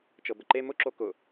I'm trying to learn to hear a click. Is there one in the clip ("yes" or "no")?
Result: yes